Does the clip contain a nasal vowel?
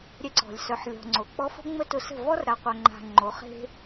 no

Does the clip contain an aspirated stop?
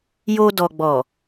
no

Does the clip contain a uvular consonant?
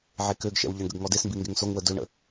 no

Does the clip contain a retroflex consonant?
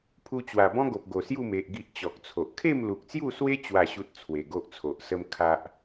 no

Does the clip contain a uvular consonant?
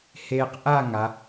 yes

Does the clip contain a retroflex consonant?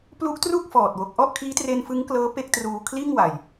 no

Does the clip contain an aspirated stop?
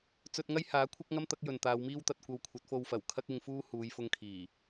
yes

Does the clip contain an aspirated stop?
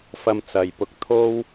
yes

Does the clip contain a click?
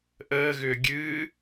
no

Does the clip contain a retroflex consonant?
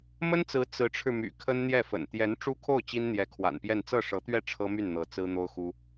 yes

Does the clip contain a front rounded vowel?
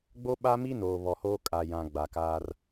no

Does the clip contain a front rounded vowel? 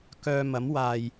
yes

